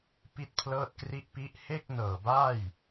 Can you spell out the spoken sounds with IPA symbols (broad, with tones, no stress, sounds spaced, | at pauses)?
p i˥˩ t̚ pʰ l ɤː˥˩ t̚ k r i˦˥ ʔ p i˦˥ ʔ h e˥˩ k̚ n ɤː˨˩ b aː˥˩ j